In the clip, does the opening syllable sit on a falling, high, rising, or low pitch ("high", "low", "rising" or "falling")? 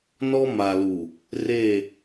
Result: high